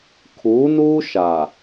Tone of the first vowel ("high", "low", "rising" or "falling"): rising